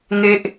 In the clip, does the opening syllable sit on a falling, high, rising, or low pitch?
high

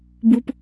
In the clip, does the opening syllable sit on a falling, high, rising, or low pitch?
high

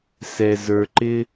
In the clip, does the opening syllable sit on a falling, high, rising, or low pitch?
low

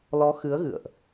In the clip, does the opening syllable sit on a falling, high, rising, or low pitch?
rising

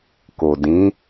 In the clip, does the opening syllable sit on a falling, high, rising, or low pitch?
low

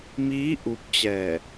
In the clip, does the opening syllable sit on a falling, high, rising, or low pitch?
rising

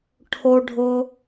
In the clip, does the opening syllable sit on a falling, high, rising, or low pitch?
high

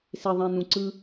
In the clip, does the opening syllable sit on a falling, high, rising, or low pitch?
low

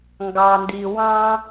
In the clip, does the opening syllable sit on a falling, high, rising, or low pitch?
low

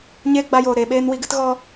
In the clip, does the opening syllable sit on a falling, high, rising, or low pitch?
high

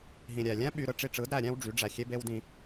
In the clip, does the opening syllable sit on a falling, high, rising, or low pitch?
low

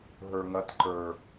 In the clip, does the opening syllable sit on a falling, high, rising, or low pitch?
low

